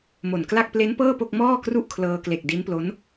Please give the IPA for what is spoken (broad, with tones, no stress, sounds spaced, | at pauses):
m o˨˩ n k l a˥˩ k̚ p l e˦˥ n p ɤː˥˩ p o˥˩ k̚ m ɔː˥˩ k r u˥˩ ʔ kʰ l ɤː˧ k l e˨˩ k̚ d i˦˥ n p l o˦˥ n